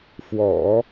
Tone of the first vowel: low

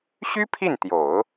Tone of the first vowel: high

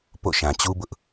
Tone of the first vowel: falling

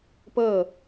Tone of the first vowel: falling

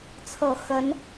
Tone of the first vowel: low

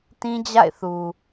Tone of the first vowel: high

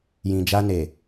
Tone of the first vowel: low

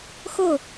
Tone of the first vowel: falling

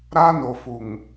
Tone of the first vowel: high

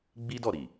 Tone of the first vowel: high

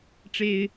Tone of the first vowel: high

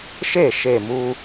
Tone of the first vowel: falling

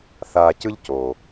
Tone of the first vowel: low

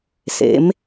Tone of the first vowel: rising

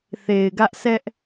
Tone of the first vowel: low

